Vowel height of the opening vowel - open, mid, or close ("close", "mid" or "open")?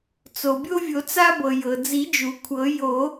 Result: mid